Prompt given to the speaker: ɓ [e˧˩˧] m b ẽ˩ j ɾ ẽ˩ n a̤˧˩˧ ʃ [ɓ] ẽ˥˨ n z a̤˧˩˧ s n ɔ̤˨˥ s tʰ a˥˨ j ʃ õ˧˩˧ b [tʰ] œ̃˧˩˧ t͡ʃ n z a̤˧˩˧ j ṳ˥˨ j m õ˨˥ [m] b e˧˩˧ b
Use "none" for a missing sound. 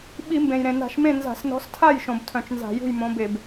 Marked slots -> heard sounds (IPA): i˧˩˧, m, tʰ, none

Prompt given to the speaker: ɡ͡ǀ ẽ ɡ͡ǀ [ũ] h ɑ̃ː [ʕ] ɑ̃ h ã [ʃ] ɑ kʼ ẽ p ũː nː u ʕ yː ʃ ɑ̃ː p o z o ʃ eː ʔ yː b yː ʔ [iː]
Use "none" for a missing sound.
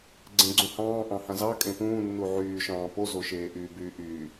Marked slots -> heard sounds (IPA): ũ, ʔ, z, yː

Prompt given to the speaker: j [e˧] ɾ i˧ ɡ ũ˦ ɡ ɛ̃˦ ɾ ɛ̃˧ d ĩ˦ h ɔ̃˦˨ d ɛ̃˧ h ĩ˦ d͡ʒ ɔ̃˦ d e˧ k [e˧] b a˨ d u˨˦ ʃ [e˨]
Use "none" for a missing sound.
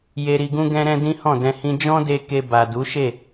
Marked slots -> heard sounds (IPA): e˧, e˧, e˦˨

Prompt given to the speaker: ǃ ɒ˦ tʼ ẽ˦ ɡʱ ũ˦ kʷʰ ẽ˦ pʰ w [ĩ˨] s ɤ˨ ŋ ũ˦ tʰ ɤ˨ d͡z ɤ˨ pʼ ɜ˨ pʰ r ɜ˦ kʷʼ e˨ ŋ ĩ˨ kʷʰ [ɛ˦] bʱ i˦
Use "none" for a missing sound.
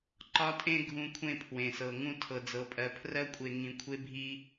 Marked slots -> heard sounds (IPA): ẽ˨, e˦

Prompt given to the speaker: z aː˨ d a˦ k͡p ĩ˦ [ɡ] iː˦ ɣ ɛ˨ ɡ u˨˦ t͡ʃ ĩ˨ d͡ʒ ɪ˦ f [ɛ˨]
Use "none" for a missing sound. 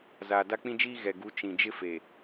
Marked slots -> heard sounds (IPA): d͡ʒ, e˨

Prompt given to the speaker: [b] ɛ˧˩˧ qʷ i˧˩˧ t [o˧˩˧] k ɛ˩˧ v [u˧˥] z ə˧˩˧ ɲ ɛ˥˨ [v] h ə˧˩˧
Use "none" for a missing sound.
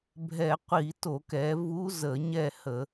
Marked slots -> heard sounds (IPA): bʱ, o˧˩˧, u˧˥, none

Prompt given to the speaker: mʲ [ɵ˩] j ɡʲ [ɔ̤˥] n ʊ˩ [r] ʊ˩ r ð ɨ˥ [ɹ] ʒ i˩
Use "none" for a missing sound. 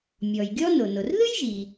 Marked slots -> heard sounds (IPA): ɔ˩, ɔ˥, n, j

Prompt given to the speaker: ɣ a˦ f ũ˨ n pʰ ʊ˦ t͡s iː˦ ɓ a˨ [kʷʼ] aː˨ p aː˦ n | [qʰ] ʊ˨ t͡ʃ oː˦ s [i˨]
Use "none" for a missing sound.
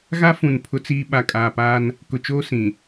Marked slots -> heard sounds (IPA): kʼ, k, ĩ˨

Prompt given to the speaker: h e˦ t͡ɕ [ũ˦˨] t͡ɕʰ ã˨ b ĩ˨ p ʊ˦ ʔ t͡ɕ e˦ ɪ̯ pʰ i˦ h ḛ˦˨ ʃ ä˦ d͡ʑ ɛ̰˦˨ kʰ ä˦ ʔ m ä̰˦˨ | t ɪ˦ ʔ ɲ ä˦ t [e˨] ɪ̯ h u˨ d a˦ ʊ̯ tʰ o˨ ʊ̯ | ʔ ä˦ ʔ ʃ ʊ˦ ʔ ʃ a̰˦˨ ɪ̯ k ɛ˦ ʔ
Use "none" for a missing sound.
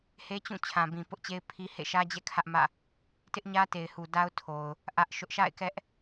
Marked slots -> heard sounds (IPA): ũ˦˨, e˨

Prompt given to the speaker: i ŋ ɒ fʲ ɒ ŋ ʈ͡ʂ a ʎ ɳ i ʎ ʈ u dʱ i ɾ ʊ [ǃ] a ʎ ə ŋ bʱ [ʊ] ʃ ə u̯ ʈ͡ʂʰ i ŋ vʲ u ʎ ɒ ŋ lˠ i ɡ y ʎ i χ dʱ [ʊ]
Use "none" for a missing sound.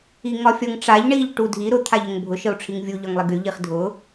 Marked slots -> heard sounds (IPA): t̪ʰ, ʊ, ʊ

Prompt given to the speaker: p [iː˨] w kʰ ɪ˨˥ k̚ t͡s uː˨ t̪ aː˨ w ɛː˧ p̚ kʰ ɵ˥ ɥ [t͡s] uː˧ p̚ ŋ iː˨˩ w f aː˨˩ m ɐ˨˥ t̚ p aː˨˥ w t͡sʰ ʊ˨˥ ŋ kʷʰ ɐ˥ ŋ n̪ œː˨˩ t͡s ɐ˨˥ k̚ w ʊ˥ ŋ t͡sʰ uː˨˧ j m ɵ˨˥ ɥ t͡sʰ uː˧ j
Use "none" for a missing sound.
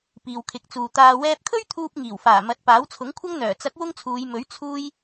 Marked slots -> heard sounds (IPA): iː˨, t̪ʰ

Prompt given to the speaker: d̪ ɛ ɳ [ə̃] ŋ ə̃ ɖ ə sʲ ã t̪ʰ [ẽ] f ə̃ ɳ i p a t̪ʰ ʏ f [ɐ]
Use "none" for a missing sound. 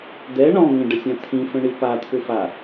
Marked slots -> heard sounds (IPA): ɔ̃, ĩ, a

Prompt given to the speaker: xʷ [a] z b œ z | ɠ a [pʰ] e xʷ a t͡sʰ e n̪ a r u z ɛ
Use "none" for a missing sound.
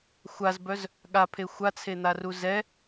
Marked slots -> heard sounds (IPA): a, pʰ

